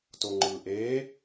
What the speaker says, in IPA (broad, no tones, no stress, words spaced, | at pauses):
toŋ͡ǃɯːʔeː